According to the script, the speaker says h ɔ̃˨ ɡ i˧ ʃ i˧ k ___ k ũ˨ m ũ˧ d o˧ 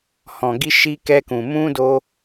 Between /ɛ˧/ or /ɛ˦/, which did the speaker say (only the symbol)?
ɛ˧